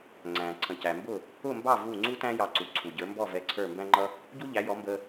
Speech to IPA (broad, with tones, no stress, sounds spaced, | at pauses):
ŋ͡ǀ æ̃˩ ǀʰ ə̃˩ c æ˩ m b ʊ˥˩ | ʊ˥˩ m b ɑ˥˩ v u˥˩ ŋ͡ǀ u˥ t æ̃˥ j ɑ˧ ǀ u˩ ǀʰ u˩ ɟ ə˞˩˥ m b ɔ˥˩ v ɛ˧ ǀʰ ə˞˥˩ m b æ̃˥ ŋ͡ǃ ʌ˥ | ɟ u˥ ʎ æ˩˥ j ɔ˩˥ m b ə˧